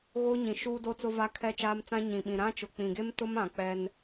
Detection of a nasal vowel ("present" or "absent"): present